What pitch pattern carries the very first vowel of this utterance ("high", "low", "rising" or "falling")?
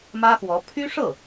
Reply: high